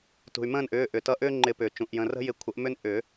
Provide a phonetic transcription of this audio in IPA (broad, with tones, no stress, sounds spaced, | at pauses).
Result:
t ṳ˩ y̯ m ə̃ː˥˨ n ʔ ʏː˩˧˩ ʔ ʏ˩ t ʌ˨˥ ʔ ʏː˦ ŋ͡ǃ ɪ˨˩˦ p ʏː˩ t͡ʃ ũ˩ ʔ j ə̃˩˧˩ r ə̤˦ j ɪ˨˥ kʷʰ ə˨˩˦ ʔ m ʏ˦ n ʔ ʏ˨˩˦